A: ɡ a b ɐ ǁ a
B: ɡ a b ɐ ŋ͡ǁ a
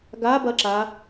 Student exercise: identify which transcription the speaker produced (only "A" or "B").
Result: A